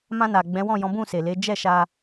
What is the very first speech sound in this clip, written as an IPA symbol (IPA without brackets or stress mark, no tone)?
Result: m